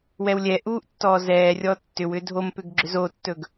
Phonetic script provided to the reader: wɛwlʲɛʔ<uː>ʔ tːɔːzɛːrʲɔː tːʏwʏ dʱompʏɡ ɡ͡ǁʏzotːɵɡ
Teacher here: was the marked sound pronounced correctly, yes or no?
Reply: yes